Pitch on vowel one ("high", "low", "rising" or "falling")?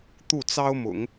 falling